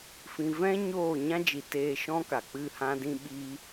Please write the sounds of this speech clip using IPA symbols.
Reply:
f ĩ˧ v ɛ̃˦ ɲ oː˦˨ ɲ ã˦ d͡ʒ i˨ t eː˧ ʃ ɔ̃˦ k a˨ k͡p ɨ˦˨ h ã˦ d ĩ˦ ɓ i˧

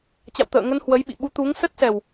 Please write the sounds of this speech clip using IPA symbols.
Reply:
t͡ɕ a̰˧˨ w t̪ ə̰ː˧˨ ŋ ə˧ n h w ə˨˦ j ɓ ḭ˧˨ ɓ u˨˦ t̪ u˨˦ ŋ s ə˦˥ t̚ s ɛ˨˩ w

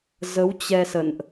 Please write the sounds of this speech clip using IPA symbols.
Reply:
z ə˨˦ w t͡ɕ ɛ˧ s ə̰˧˨ n ʔ

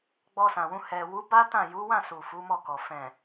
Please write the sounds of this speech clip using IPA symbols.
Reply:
ɡ͡b ɔ˧ s ã˨ w ũ˧ h ɛ˨ w u˨˦ b a˦ t ã˦˨ j u˨˦ w ã˦˨ s u˨ f u˨˦ m ɔ˦˨ k ɔ˨ f ɛ̃˨

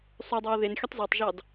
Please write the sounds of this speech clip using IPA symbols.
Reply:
sˤ ø dˤ æ ʊ̯ ð e n xʲ ɯ tˤ z ɑ tˤ ʒ ɑ d

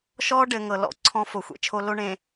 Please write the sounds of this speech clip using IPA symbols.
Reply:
ʃ ɔ˦ ɖ ɘ˨ ŋ ɤ˨ l ɔ̰˨ ǀʰ ɔ̃˦ f o˨ xʷ ḛ˦ t͡ʃʰ o˦ l o˦ ɳ ẽ˨

